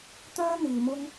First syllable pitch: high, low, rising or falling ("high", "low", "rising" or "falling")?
high